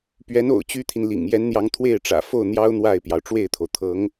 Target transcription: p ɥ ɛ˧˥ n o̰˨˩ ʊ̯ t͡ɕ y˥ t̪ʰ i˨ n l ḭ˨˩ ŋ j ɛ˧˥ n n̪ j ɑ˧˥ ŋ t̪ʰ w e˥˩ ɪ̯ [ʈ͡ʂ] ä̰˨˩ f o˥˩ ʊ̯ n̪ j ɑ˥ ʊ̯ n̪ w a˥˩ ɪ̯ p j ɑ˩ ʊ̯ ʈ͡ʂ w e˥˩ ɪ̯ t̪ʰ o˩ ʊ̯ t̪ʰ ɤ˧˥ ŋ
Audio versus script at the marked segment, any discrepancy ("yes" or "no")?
no